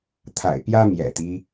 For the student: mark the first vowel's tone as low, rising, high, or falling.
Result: low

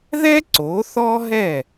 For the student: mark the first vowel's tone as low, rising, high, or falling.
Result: high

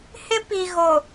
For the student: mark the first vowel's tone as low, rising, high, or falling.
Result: high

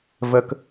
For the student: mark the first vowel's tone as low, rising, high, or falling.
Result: high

